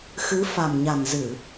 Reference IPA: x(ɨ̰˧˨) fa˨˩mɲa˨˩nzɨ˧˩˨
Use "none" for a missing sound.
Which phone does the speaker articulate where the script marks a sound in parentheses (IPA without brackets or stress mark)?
ɨ˨˦